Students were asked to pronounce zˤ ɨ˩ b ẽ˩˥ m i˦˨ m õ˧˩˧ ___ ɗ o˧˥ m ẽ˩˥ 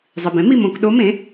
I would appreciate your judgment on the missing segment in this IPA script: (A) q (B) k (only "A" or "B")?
B